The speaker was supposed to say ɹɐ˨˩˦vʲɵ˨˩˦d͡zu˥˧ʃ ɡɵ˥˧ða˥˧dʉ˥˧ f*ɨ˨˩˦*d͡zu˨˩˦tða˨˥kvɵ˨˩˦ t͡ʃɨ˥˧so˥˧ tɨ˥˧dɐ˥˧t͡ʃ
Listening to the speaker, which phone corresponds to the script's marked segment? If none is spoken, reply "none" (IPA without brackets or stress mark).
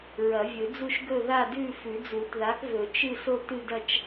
ʉ˨˩˦